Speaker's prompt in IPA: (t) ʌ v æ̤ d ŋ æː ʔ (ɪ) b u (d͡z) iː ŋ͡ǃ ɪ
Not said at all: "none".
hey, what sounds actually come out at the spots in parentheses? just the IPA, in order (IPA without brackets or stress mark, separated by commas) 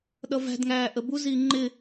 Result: ɗ, ə, z